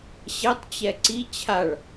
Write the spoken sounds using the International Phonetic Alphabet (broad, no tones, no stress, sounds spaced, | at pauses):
ɕ ɛ tˤ t͡ɕ ɛ ǀ i t͡ɕʰ a ɭ